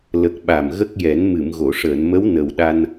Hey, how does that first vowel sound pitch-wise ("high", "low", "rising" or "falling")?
low